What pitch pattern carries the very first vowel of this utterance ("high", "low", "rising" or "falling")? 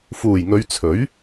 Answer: low